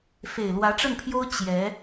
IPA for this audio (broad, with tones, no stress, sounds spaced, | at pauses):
f e˨˩ ɪ̯ l w ä˧˥ ʈ͡ʂ ə˥˩ n pʰ j o˥ ʊ̯ t͡ɕ j ɛ˧˥